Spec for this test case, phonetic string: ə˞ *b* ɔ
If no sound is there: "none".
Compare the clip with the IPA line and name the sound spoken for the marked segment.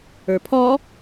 pʰ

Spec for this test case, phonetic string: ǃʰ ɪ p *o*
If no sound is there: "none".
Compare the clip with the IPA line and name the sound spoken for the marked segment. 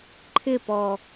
ɔ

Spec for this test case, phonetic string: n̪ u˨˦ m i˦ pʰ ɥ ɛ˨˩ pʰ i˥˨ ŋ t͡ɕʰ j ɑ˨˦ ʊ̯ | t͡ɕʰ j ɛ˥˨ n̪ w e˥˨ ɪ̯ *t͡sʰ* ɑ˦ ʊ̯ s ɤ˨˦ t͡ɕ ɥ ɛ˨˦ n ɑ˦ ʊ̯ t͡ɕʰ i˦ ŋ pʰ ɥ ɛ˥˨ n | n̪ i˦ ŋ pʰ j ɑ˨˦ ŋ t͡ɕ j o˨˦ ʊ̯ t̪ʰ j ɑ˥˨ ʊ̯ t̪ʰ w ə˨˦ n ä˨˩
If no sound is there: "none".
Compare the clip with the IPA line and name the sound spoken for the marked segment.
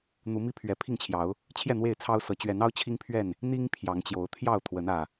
t͡sʰ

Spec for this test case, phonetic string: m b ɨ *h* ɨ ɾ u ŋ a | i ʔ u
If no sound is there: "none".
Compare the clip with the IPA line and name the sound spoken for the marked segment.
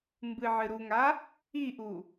ʕ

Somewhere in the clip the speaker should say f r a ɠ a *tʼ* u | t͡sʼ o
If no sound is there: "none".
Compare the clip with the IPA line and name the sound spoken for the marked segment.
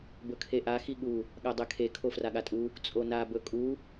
tʼ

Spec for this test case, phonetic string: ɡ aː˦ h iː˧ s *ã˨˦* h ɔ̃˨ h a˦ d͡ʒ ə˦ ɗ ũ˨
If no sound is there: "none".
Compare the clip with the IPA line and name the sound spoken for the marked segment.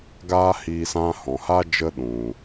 ã˧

